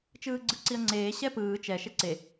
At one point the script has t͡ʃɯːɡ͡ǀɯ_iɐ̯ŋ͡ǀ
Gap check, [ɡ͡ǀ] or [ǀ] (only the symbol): ǀ